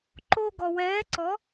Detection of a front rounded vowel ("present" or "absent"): absent